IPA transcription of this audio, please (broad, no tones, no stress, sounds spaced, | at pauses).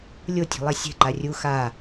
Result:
lʲ o tʲ e̤ lˠ ɛ sʲ ɛ̤ ǃ a rʲ u x a